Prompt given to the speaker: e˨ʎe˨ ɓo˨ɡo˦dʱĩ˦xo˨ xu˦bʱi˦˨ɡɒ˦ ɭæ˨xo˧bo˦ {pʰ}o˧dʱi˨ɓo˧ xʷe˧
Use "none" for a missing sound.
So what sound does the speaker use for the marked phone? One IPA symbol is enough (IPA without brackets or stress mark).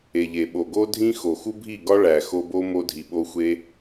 m